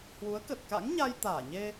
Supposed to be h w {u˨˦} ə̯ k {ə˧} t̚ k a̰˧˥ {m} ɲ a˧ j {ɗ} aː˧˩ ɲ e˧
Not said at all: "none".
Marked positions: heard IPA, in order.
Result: u˨˦, ə˨˩, ŋ, t̪

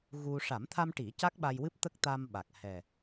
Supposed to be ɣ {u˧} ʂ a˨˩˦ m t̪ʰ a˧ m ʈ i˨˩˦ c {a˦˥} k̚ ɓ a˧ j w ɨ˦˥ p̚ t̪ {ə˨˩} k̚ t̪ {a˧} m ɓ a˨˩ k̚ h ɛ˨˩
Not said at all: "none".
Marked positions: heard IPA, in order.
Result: u˧, a˦˥, ə˦˥, a˧

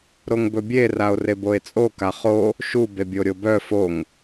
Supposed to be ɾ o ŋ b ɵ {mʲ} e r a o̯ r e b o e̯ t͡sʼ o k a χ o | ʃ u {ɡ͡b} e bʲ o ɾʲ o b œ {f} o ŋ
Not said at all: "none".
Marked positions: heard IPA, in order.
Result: bʲ, b, f

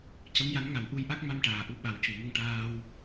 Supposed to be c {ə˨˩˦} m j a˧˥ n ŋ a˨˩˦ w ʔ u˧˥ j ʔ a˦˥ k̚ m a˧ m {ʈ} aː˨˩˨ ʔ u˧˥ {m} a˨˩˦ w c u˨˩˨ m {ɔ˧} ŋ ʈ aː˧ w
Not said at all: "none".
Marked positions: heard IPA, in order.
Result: ə˧˥, ʈ, ɓ, ə˧

